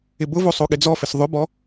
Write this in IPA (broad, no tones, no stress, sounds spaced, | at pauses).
ɪ b ʊ v o sˤ o ɠ ɪ d͡z ɔ f ɪ s ðˤ ʊ b ɔ